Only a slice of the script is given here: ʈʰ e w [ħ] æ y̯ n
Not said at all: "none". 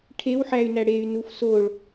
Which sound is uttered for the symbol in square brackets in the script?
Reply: ħ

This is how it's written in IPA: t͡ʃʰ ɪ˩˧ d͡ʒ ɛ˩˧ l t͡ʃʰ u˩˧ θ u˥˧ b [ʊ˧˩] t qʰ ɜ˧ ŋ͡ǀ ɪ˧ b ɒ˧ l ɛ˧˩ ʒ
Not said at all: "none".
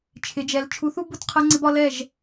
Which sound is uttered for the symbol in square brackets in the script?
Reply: ʊ˧˩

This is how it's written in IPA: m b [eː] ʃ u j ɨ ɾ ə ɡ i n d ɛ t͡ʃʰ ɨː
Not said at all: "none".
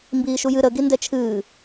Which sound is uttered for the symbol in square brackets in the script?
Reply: iː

